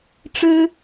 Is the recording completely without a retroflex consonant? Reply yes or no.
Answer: no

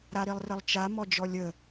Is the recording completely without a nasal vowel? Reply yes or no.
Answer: yes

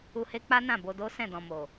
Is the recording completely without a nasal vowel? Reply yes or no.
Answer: no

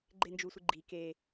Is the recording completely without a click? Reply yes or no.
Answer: no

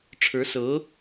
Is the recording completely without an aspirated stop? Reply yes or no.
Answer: no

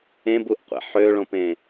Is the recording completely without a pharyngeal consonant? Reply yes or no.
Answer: no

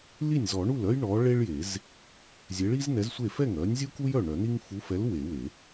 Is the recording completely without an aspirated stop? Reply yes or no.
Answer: yes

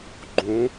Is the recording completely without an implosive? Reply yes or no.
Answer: yes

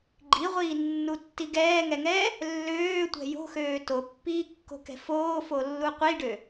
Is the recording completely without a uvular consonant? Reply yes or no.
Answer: no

